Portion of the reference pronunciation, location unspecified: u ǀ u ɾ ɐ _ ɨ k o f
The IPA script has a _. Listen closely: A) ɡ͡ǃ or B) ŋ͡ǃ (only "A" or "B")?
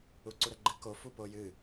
A